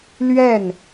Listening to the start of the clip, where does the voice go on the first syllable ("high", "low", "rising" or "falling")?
falling